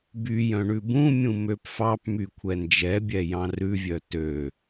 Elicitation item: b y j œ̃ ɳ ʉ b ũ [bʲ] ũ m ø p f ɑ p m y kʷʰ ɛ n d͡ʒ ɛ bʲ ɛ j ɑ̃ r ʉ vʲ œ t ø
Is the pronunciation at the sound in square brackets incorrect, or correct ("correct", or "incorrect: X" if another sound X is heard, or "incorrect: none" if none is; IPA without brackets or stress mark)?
incorrect: mʲ